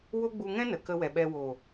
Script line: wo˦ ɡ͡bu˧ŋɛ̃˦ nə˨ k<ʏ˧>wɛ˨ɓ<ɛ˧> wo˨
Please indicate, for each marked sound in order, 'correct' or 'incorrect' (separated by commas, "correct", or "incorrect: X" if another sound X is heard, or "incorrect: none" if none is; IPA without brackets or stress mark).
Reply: incorrect: ə˧, correct